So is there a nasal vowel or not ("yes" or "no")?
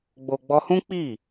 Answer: yes